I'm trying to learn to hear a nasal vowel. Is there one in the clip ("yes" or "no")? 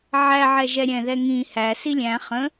yes